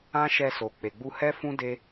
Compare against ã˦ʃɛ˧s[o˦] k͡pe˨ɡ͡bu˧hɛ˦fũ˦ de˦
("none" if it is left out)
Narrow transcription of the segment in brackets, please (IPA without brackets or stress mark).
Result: o˨